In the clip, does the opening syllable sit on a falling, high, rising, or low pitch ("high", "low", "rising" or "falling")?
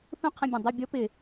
high